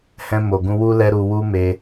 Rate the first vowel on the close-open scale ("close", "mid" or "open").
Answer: mid